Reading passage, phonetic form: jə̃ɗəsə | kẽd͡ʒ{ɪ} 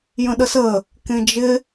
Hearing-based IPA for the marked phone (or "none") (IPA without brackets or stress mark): ɪ